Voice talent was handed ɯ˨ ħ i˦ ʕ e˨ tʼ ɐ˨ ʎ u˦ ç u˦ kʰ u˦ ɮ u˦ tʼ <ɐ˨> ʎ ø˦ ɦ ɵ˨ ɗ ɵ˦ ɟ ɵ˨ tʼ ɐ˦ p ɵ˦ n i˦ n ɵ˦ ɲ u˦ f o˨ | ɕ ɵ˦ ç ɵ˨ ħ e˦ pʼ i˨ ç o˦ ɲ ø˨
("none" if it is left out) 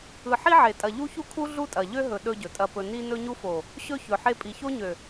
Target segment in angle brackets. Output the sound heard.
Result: ɐ˨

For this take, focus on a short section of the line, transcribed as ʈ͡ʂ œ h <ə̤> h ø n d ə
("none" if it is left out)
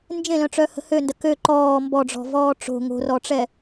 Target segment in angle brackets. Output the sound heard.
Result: ə̤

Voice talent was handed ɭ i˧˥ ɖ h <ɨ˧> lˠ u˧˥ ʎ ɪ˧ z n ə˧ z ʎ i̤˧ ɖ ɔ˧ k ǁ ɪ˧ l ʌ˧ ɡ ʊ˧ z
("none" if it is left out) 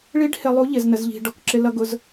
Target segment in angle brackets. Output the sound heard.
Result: ɪ˧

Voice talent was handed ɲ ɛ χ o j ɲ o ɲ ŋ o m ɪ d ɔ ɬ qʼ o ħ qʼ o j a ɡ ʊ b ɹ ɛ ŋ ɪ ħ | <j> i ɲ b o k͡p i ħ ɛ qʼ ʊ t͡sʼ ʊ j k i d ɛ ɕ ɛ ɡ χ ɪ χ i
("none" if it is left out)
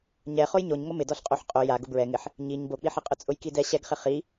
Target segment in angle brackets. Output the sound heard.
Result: ɲ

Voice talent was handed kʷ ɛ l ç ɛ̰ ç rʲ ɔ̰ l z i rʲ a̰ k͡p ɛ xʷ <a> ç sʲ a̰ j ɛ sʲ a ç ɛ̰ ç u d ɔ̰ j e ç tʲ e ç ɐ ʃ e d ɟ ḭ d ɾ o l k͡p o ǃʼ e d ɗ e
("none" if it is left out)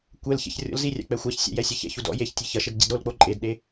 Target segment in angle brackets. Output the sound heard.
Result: a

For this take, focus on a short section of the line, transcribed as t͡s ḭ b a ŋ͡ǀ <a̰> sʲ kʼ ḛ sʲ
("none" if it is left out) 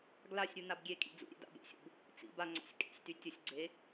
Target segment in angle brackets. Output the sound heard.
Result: a̰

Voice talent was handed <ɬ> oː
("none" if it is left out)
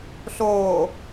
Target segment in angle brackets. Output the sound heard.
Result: ɬ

